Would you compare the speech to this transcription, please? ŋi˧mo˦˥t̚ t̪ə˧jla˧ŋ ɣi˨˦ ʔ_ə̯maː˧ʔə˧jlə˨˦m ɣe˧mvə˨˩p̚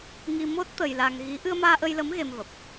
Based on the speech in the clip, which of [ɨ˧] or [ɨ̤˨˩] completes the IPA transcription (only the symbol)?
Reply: ɨ˧